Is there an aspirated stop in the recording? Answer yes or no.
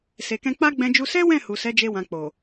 no